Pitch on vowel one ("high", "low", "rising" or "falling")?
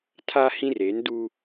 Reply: high